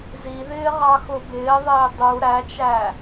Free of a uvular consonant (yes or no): no